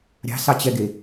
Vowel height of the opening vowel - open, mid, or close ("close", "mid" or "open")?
open